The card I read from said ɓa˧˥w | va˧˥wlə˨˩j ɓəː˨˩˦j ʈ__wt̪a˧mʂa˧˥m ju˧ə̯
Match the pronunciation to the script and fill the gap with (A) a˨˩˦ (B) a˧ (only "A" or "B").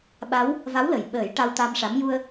B